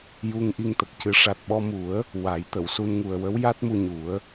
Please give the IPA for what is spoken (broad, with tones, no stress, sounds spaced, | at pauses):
j u˧ ŋ ʔ i˧ ŋ t̪ ə˨˩ k̚ c ɨ˨˩˦ ʂ a˨˩ t̚ ɓ ɔ˧ m u˨˩˦ ə̯ | w a˨˩˦ j t̪ ə˨˩˨ w s u˧ n ŋ u˨˩ ə̯ w ə˧˥ w j a˦˥ t̚ m u˧ ɲ u˨˩˦ ə̯